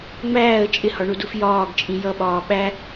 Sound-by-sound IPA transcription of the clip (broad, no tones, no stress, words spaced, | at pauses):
ŋ͡mæːə̯ t͡ʃʼɪhɒɳuduf jɒːɡt͡ʃʼĩ jʌɓɒː ɓæ